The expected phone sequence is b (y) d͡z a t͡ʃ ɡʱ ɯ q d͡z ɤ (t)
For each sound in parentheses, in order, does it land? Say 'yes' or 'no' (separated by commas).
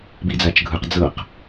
no, no